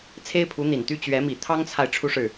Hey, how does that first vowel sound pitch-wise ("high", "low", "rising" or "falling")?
high